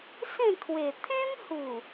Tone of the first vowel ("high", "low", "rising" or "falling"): falling